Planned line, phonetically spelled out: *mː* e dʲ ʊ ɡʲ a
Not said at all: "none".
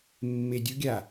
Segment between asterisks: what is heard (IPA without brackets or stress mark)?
mː